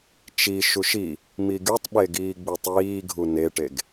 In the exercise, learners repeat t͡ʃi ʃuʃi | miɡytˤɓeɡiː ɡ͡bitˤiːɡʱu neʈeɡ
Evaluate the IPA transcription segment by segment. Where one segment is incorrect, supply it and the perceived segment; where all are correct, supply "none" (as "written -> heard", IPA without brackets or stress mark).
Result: none